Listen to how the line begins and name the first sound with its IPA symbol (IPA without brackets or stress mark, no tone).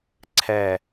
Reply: ǀʰ